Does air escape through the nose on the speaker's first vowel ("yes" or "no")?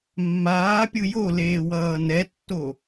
no